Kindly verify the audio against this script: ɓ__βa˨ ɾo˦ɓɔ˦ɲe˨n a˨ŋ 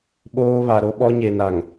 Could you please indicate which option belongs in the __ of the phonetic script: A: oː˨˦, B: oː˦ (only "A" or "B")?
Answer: B